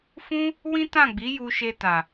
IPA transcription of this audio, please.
f ũ˦ | w ĩ˦ t ã˦˨ ɡ͡b i˨˦ j u˧ ʃ e˧ t a˨

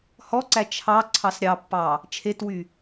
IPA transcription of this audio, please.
h ɔ ǀ æ t͡ʃʰ ɑ ǀʰ ɑ s ɾʲ ɑ pː ɑ | t͡ʃʰ e t w y

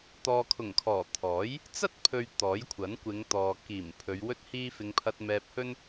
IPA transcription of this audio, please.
t̪ ɔː˨ kʰ ʊ˨˩ ŋ kʰ ɔː˨˩ t̪ʰ ɔː˨˥ j | t͡s ɐ˥ t̚ pʰ ɵ˨ ɥ t̪ ɔː˨˥ j kʷʰ ɐ˨˥ n kʷ ɪ˨˧ ŋ t̪ ɔː˨ k iː˨˩ m pʰ ɵ˨˧ ɥ w ɵ˥ t̚ h iː˥ f ɪ˧ ŋ pʰ ɐ˧ t̚ m ɛː˧ p̚ h ɵ˥ n

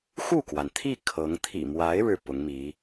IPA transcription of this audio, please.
x u˥˩ k w a˩ n t̪ʰ i˥˩ kʰ ɤ˧˥ ŋ t̪ʰ ḭ˨˩ m w a˧˥ ɪ̯ ɻ ɻ̩˥˩ p ʊ˧˥ ŋ m i˧˥

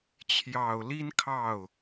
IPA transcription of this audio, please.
t͡ɕʰ j ɑ˨˩ ʊ̯ l i˥ n kʰ ɑ˥˩ ʊ̯

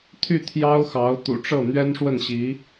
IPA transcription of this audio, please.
t̪ʰ y˥˩ t̪ʰ j ɑ˥ ʊ̯ x ɑ˧˥ ʊ̯ t̪ ṵ˨˩ ʈ͡ʂ ɤ˥˩ n̪ ɥ ɛ˥ n ʂ w ə˥˩ n ɕ i˧˥

